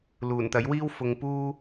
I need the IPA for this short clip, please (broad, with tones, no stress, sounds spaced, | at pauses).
l uː˨˩ n t̪ ɐ˨˥ j w iː˥ w f ʊ˨ ŋ p uː˥